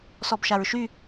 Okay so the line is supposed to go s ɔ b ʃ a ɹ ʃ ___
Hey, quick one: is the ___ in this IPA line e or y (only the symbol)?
y